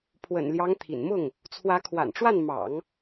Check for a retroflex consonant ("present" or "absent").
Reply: present